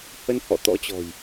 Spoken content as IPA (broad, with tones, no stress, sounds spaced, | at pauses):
h ə˧ n h ɔ̰˧˨ t̪ ɔ̰˧˥ t͡ɕ ɔ̤˨˩ j